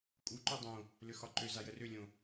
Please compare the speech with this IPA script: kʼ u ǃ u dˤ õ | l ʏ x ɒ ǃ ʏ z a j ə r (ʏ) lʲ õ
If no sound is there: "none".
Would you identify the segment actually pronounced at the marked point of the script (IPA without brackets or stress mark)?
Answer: ʏ